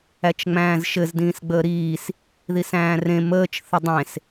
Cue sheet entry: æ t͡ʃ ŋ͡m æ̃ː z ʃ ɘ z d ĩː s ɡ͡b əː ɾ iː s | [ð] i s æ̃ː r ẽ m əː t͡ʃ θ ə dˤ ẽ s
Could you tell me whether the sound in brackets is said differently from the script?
no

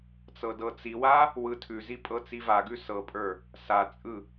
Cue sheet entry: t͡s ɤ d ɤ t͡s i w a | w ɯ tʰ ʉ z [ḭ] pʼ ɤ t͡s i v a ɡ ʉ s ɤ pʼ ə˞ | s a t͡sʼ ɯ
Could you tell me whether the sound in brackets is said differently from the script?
yes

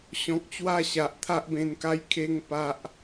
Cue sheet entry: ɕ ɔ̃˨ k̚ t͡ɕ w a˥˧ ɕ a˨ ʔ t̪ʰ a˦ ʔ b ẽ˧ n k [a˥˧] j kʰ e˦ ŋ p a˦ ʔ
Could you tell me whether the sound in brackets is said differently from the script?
no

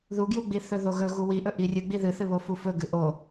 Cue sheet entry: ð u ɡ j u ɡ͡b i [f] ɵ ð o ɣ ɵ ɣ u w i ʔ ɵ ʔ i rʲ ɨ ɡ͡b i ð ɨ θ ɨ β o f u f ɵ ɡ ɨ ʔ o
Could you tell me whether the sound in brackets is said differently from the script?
yes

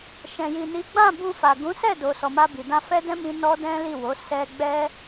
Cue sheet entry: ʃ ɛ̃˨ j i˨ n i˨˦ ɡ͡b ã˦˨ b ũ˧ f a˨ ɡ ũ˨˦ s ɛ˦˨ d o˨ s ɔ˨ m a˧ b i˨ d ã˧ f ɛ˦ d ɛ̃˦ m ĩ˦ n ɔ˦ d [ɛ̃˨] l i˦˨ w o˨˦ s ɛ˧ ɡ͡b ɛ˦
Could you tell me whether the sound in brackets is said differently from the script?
yes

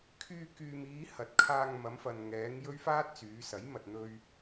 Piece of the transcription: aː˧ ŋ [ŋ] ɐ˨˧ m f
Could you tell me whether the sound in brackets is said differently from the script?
yes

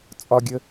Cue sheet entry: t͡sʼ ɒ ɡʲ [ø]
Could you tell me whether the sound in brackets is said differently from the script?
yes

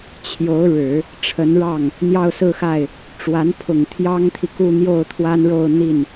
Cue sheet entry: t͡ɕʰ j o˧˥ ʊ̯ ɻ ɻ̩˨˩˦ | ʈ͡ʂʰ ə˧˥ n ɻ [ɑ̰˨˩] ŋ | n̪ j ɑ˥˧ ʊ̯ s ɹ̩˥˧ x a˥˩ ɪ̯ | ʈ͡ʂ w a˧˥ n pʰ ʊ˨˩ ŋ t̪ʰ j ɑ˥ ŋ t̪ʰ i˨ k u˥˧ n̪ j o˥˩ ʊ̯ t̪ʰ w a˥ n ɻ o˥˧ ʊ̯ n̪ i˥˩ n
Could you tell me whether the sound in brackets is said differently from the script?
yes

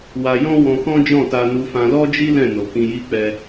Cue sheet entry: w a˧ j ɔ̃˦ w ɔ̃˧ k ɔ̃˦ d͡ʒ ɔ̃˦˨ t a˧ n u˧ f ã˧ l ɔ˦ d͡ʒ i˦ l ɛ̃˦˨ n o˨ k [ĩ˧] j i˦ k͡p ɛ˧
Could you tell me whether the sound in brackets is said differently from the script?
no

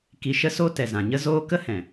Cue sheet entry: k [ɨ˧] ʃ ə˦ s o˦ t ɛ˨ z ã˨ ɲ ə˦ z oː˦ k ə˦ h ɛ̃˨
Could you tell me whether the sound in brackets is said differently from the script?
yes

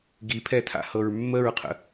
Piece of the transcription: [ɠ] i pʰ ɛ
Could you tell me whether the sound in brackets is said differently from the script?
yes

